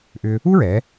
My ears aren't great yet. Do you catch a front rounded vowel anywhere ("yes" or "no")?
yes